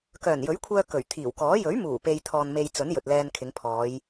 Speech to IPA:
k œː˨˩ n j ɵ˨˥ ɥ kʷʰ œː˧ k ɵ˨˩ ɥ t̪ʰ iː˨˩ w k ɔː˨˥ j ɵ˨˥ ɥ m uː˨˩ p e˨ j t̪ʰ ɔː˨ n m e˧ j t͡s ɵ˨˥ n j ɵ˨ t̚ l ɛː˧ n kʰ ɪ˨˧ ŋ pʰ ɔː˨˧ j

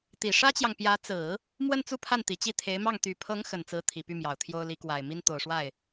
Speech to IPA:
t̪ i˨˩ ʂ ä˥ t͡ɕ j ɑ˨ ŋ p j ä˧˥ t͡s ɹ̩˨˩˦ | m w ə˥˧ n t͡s u˥˧ pʰ a˥˩ n t̪ i˨˩ t͡ɕ i˥˩ t̪ʰ e˧˥ ɪ̯ m ɑ˥˩ ŋ t̪ y˨˩ pʰ ɤ˧˥ ŋ x ə˨˩ n t͡s ɹ̩˧˥ t̪ʰ i˨˩ p y˥˩ m j ɑ˨˩ ʊ̯ t̪ʰ j o˥ ʊ̯ l i˧˥ k w a˨˩ ɪ̯ m i˥ n t̪ o˨˩ ʊ̯ ʂ w a˥˩ ɪ̯

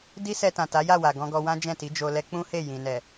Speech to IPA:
d i˦ s ɛ˧ t ã˨ t a˨˦ j a˦˨ w a˨ ɡ ɔ̃˧ ɡ ɔ˧ w ã˦ d͡ʒ ɛ̃˦˨ t i˨˦ d͡ʒ o˧ l ɛ˦ k͡p ũ˦ h e˦˨ j ĩ˨ n ɛ˨

